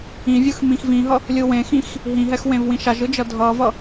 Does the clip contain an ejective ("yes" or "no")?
no